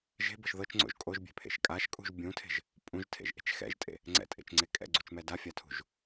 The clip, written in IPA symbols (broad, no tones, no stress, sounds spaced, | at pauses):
ʒ e̤ b ɤ ʃ ð ɤ t͡ʃ ŋ͡ǀ o̰ ʒ kʼ o ʒ bʲ e̤ pʰ ḛ ʃ kʼ a ʃ kʼ ṳ ʒ bʲ ũ tʰ e̤ ʒ | pʼ ũ ʒ tʰ ḛ ʒ ʔ e̤ t͡ʃ x ɛ̰ ʒ tʼ ḛ | ŋ͡ǀ ɛ̰ tʼ ḛ t͡ʃ ŋ͡ǀ e kʼ ɛ̰ ɡ͡ǀ u t͡ʃ m ɛ d a fʲ a tʰ ṳ ʒ